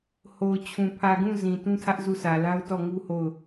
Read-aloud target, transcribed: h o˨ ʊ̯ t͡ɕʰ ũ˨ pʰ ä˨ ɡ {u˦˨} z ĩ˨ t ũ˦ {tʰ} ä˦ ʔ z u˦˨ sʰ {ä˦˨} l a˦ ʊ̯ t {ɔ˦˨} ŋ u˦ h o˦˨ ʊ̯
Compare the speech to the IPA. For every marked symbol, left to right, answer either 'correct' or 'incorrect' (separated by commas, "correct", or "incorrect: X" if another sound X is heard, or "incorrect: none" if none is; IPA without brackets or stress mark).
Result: incorrect: ũ˦˨, correct, incorrect: ä˨, correct